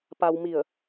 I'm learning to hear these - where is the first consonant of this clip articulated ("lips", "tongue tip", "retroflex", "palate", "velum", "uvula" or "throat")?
lips